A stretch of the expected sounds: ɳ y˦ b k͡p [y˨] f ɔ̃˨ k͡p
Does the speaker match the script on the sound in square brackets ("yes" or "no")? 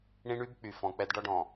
yes